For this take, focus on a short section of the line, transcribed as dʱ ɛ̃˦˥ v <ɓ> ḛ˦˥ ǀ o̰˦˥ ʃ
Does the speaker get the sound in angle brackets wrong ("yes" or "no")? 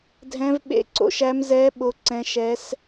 no